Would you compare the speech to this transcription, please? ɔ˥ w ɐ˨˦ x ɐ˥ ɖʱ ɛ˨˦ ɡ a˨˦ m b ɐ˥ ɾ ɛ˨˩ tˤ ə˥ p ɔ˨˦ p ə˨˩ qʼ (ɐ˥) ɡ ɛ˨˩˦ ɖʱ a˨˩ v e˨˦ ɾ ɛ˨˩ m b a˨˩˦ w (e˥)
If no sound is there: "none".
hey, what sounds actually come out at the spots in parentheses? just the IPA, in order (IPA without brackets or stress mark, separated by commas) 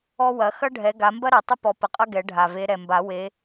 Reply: ɐ˥, e˨˦